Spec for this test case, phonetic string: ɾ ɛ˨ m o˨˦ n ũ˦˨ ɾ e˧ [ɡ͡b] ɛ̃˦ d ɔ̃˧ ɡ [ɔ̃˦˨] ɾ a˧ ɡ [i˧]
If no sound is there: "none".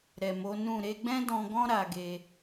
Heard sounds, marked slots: ɡ͡b, ɔ̃˦, e˧

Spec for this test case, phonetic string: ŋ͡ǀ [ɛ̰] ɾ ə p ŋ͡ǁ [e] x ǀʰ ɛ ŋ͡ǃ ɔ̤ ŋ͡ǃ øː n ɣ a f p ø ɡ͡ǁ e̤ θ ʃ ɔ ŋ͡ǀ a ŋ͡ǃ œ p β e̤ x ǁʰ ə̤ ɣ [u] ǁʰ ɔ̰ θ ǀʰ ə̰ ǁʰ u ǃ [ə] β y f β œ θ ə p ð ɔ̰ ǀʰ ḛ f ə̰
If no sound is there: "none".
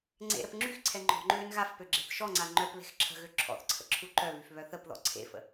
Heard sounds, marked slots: ḛ, y, ø, œ

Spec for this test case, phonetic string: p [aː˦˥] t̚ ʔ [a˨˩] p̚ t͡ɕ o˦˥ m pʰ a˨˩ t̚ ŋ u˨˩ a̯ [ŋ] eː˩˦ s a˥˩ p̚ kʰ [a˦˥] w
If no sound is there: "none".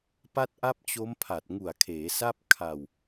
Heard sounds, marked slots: a˦˥, a˦˥, kʰ, a˧

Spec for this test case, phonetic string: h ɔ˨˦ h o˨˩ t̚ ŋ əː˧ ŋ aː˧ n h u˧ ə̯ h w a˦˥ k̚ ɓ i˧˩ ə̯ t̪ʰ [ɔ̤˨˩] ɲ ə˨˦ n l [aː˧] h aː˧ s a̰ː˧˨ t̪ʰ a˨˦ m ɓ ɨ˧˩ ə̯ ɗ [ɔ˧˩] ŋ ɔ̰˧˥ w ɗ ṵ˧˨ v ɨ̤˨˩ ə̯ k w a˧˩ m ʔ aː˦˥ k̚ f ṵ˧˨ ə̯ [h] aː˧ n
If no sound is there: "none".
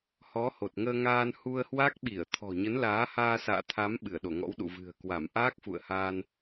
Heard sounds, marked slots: ɔ̤˨˩, aː˨˦, o˧˩, h

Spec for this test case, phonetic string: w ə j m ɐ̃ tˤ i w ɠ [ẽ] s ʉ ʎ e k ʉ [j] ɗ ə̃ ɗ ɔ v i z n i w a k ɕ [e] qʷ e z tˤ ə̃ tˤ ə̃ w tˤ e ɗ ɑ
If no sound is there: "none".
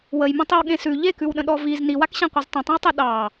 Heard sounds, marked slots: ẽ, w, ẽ

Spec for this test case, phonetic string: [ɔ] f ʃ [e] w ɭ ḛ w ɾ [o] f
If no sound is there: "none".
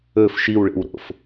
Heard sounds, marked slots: ɵ, i, o̰

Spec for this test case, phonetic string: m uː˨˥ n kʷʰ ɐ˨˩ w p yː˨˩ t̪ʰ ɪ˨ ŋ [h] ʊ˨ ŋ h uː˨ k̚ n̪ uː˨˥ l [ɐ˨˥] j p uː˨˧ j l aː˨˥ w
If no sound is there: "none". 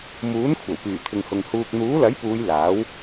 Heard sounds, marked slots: h, ɐ˨˥

